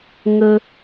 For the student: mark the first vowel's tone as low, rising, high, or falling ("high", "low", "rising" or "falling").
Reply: high